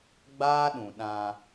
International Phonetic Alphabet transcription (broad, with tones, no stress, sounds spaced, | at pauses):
ɡ͡b aː˦ ɗ ũ˨ ɗ ã˧